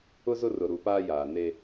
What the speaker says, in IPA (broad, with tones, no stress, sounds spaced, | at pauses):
ʊ˦ z ʊ˦ r ʊ˨ ɾ u˨ p aː˦ j aː˨ n e˦